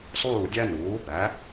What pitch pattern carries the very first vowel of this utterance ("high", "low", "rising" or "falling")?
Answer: falling